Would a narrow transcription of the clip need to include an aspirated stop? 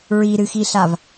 no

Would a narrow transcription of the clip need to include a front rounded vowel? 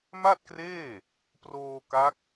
no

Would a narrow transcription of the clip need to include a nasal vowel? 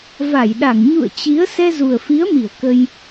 no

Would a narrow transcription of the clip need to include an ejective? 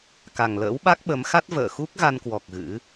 no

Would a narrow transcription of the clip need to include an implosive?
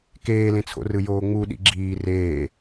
yes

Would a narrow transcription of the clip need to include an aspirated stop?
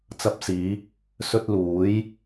no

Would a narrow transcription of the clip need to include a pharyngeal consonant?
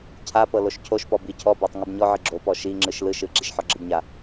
yes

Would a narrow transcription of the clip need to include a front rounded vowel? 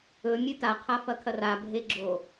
no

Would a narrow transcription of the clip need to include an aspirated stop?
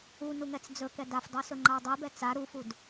no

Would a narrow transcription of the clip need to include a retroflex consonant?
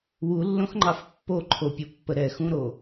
no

